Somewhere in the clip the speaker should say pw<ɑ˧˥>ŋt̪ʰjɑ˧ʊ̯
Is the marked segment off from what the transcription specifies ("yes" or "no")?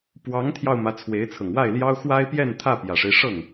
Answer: no